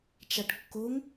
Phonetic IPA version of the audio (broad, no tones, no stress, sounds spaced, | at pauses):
t͡ʃ a ʈ kː o ŋ